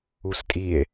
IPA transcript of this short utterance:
u s tʼ i e̯

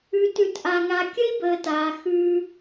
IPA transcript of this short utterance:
ʉ˧ t ʉ˧ t ʔ a˧ ŋ a˧ kʲ ə˦ i̯ b əː˨ t aː˨ x ʉː˧

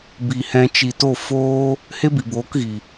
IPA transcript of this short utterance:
b i˨ h ɛ̃˧ t͡ʃ i˨ t o˦˨ f oː˦ | h e˦ b i˨ b oː˨˦ k ɣ i˨

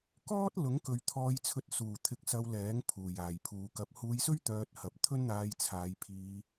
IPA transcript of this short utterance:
k ɔː˥ t̚ l ʊ˨˥ ŋ k ɵ˨˧ ɥ t̪ʰ ɔː˧ j t͡sʰ ɵ˧ t̚ s uː˨˩ t̪ʰ ɪ˨˥ k̚ s ɐ˧ w l ɛː˨˥ ŋ pʰ uː˨˩ j aː˨˩ j pʰ uː˨˧ k ɐ˨ p̚ h uː˧ j s ɵ˥ ɥ t̪ œː˧ t̚ h ɐ˨ p̚ t̪ʰ ɵ˥ n n̪ aː˧ j t͡sʰ aː˨˧ j pʰ iː˧

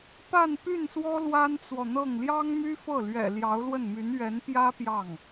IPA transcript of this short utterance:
p a˥˧ n p y˥˩ n s w ɔ˥ l w a˥ n t͡s w ɔ˨ n̪ ɤ˥˩ ŋ l j ɑ˥ ŋ m y˥ f ɤ˥˩ l ɥ ɛ̰˨˩ l j ɑ˧˥ ʊ̯ l w ə˥˩ n m y˧˥ n ɥ ɛ˧˥ n p j ä˥ p j ɑ˥˩ ŋ

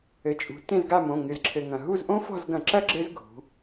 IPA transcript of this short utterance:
ɘ˩˧ t͡ʃʼ ṳ˩˧ t ẽ˦˨ z ɡ a˦˨ m õ˩˧˩ ŋ ɨ˩ z ǁʰ ɘ˩ ŋ ɐ̃˩ ɦ u˦˨ z ʔ õ˦˥ f ɔ̤˦˨ z ɡ ɐ̃˧˩˧ ǁ ɐ˦˥ ɡ͡ǁ ɘ˦˥ z ɡʱ ṳ˩˧

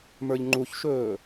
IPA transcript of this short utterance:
m ə˞ ʎ ŋ͡ǃ u ç ʃ ɵː

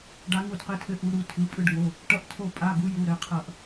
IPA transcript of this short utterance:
ɖ a˦˥ ŋ u˥˧ d q ɘ˦˥ tʰ ɘ˦˥ ʔ u˦˥ ɾ u˦˥ tʰ ɯ˧˥˧ pʼ ɯ˥˧ ɖ ŋ o˧˥˧ | ʈ ʌ˥˧ ʔ tʰ o˥˧ pʼ a˧˥˧ ɡ u˦˥ j u˧˥˧ ɾ ɘ˧˥˧ qʰ ʌ˥˧ ʔ

